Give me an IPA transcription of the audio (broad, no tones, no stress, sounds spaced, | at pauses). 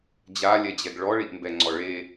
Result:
d͡ʑ a lʲ ɛ d͡ʑ ɛ ɡ ɭ ɔ ɭ i ʔ m b ɛ ŋ͡ǀ ɔ ɭ e